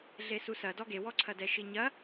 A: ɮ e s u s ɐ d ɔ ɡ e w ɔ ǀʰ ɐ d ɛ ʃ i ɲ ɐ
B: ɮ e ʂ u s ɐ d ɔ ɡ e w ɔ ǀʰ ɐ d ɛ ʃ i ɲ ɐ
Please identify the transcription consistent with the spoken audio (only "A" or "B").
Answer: A